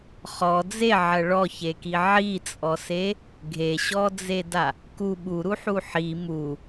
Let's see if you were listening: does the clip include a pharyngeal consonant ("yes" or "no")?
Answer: yes